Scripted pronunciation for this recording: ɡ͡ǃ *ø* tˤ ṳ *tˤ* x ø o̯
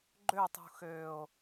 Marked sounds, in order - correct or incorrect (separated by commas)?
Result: correct, incorrect